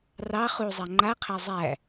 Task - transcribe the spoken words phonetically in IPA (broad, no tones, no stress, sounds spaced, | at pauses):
r ɑ χ u zˤ a ŋ͡ǃ a qʰ æ zˤ æ